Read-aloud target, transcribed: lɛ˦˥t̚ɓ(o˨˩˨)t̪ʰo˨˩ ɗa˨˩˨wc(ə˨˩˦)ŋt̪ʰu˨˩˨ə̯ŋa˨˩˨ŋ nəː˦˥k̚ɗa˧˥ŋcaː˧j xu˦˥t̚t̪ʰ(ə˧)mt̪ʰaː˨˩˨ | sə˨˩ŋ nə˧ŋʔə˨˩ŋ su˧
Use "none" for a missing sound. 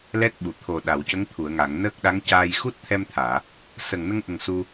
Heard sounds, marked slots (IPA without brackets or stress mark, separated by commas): u˨˩˨, ə˧˥, ɛ˧